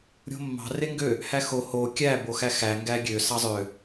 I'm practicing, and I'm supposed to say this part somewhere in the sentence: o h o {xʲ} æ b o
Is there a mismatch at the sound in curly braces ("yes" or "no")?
yes